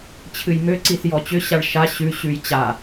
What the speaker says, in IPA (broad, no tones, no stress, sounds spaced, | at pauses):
t͡ɕʰ ɨ j m ø ǀ i s j ɔ t͡ɕ ʏ ɕ a ɭ ʃ a ɕ ʉ ɕ ʉ j t͡ɕ a